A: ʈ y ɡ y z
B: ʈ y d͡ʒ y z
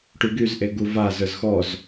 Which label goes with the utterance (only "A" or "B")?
A